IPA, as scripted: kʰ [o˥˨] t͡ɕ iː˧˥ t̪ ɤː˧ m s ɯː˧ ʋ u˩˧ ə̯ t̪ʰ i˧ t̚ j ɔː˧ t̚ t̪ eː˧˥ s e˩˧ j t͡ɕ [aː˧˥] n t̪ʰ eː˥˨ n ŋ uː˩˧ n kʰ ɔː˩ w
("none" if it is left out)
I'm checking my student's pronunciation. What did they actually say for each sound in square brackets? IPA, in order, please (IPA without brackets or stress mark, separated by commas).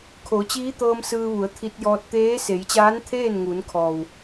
o˩˧, aː˧˥